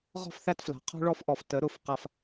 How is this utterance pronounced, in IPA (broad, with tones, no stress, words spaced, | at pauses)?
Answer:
ʁɔ̤˦˨fθæ˦tfla̤˨ qʰɔ̤˦ɭɔ˦fʔɔ˨f tə˨˦ɾʊ˦˨f qa˦f